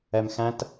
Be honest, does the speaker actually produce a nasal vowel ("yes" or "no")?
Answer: yes